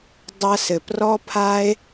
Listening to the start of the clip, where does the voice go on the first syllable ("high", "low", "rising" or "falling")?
high